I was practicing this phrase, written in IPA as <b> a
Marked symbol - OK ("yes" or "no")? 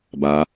yes